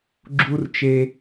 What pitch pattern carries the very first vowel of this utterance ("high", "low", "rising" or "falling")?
high